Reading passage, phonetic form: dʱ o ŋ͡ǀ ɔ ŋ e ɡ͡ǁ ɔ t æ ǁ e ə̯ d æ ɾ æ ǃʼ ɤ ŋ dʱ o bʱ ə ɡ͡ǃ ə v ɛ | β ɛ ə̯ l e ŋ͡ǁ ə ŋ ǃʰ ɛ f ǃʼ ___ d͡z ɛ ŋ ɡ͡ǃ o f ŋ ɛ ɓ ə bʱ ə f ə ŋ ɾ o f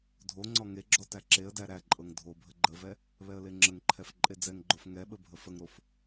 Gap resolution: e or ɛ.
e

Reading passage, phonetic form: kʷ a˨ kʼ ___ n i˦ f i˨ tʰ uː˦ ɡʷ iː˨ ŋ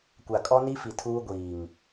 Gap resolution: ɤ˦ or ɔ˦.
ɔ˦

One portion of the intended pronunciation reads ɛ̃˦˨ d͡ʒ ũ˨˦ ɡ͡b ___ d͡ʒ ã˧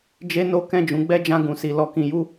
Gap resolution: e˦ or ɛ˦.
ɛ˦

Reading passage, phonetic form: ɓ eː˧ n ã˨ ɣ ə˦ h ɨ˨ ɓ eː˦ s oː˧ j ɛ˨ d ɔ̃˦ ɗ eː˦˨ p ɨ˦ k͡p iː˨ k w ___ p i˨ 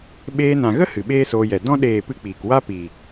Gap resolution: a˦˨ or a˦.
a˦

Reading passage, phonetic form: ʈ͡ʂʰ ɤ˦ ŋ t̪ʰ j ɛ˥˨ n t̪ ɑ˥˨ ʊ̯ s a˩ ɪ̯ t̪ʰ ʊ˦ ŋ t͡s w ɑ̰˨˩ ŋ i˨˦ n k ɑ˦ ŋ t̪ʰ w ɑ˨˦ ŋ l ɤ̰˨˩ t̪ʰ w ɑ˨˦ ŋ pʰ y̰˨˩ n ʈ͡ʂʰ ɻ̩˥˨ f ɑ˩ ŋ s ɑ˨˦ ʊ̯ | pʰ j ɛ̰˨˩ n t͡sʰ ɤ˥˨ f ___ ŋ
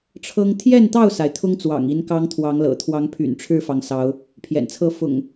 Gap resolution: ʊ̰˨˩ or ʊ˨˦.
ʊ̰˨˩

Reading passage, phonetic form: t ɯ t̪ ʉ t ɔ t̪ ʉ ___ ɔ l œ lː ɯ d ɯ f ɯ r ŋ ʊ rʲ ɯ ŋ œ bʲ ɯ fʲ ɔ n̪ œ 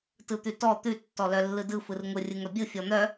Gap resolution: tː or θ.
tː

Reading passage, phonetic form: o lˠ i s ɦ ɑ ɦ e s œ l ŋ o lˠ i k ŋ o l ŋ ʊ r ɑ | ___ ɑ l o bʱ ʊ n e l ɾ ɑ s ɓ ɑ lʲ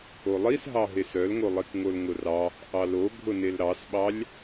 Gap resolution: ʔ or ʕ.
ʔ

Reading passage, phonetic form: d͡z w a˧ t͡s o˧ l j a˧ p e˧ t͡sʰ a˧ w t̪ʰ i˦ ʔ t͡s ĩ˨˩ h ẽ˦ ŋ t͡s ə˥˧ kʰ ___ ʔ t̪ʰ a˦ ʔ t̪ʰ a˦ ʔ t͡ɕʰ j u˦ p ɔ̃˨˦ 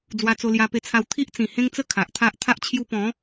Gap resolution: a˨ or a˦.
a˨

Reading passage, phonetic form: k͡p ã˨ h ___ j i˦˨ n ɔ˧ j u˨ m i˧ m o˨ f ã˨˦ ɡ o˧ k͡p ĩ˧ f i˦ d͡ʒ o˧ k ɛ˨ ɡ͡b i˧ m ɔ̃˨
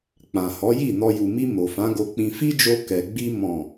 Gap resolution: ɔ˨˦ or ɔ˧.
ɔ˨˦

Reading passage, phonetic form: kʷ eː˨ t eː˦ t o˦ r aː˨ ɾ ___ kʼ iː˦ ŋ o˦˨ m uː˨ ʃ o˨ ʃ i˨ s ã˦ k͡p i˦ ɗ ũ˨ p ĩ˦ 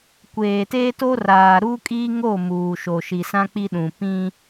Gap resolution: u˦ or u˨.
u˦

